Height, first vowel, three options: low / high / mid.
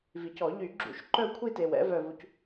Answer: high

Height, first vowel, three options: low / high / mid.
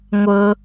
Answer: mid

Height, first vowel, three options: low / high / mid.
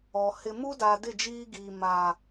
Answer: mid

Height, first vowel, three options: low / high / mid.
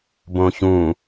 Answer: mid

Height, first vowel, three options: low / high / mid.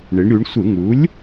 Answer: high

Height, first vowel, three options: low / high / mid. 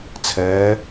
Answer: mid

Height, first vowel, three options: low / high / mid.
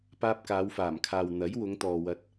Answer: low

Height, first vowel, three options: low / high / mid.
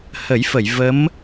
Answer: mid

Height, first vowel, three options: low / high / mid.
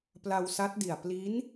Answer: low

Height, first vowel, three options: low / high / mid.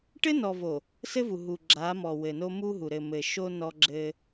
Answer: mid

